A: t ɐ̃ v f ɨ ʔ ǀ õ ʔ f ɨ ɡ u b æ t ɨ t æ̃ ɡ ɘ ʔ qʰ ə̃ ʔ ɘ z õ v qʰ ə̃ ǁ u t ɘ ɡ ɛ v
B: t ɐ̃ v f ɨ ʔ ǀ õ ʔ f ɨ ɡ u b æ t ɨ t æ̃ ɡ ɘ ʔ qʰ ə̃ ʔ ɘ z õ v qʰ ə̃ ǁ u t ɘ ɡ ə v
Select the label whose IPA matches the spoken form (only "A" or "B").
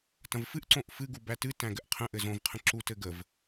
B